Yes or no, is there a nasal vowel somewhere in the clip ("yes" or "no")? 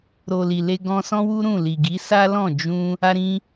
yes